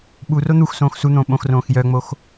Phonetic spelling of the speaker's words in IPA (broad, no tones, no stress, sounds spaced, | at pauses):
ɓ u r o n̪ u x s õː x s u n̪ õː ɓ õ x r õː x j œ ŋ͡m o x